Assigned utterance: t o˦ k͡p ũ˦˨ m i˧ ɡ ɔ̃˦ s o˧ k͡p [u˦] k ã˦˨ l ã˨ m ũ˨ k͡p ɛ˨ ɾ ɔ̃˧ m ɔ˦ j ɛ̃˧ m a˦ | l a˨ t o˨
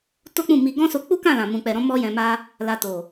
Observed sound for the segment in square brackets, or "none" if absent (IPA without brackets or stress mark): u˦